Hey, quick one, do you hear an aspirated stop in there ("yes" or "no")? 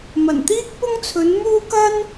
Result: yes